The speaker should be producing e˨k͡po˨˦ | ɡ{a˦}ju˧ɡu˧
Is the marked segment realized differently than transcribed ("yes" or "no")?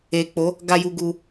yes